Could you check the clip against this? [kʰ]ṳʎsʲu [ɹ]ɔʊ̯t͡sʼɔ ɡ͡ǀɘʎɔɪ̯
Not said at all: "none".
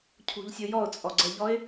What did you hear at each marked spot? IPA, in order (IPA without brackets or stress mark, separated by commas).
cʰ, j